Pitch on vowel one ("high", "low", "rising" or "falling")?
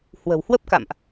low